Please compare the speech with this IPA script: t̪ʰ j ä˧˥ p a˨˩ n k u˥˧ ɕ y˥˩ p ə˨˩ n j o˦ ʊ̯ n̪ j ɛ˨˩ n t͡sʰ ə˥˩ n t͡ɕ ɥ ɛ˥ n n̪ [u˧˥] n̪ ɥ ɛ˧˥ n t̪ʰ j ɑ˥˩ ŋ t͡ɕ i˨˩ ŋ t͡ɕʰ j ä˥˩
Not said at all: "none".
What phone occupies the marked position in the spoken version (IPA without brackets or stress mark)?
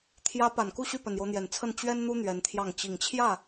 u˥